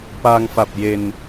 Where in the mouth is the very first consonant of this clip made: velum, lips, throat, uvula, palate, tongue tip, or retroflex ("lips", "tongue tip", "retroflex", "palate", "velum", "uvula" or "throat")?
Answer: lips